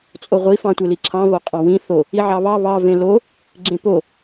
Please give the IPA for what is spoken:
t͡sʼ o ʁʷ i f ɑ̃ tʷ e l i ǁʰ ɑ̃ β o qʼ ɑ̃ w ĩ θ o | i ʕ ɑ β ɑ β ɑ v ẽ l o | ɡ͡ǁ ẽ p o

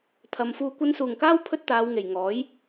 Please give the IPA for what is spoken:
t̪ʰ ɐ˨ m f uː˧ kʷ ɐ˧ n s uː˨˩ ŋ k aː˥ w pʰ ɵ˥ t̚ t̪ aː˨˧ w ŋ e˨˩ j ŋ ɔː˨˥ j

